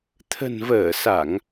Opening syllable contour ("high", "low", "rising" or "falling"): low